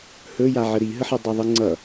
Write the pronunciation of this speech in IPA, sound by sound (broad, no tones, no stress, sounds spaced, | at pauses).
h ɵ j a ʕ ə ɾ i ɦ ə ħ ɨ dˤ ɛ ðˤ ɨ ŋ͡ǀ ʌ